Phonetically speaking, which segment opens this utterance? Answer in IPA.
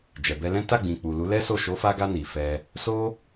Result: d͡ʒ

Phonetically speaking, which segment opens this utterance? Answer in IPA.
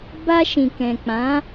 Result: b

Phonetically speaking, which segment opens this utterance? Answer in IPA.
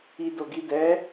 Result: i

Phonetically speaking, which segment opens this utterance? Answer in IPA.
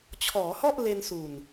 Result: t͡ɕʰ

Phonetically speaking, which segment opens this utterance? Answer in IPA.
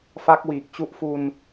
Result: f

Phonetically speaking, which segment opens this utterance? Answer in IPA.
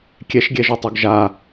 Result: kʲ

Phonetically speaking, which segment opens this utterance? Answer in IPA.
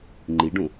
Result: ŋ͡ǃ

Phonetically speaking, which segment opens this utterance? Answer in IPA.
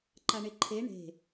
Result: ǃ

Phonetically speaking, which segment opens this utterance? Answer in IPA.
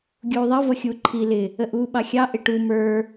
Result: ɡʲ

